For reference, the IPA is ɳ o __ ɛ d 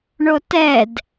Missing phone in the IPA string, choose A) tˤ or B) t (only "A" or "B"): B